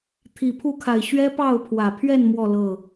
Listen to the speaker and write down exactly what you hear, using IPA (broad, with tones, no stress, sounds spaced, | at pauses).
t̪ʰ i˨˩ pʰ u˥˨ kʰ a˨˩ ɪ̯ ɕ ɥ ɛ˦ p ɑ˥˨ ʊ̯ pʰ w ä˨˩ pʰ ɥ ɛ˥˨ n m w ɔ˥˨ l ɤ˥˨